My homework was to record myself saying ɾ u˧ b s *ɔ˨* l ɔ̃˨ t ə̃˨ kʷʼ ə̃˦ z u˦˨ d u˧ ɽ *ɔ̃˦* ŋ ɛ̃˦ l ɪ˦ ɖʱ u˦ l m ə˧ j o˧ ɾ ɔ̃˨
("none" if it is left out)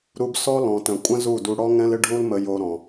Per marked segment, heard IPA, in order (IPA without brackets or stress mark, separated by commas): ɔ˦, ɔ˦